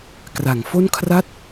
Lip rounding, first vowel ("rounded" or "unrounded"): unrounded